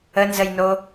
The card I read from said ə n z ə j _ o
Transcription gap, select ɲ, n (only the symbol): n